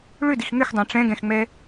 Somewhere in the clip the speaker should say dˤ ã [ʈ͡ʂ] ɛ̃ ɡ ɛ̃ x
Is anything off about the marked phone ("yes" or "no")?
no